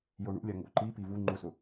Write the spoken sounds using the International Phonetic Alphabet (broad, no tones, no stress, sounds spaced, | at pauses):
j o ɳ ṵ lʲ a ŋ o̰ ǃ i p i v u ŋ͡ǃ u s ʊ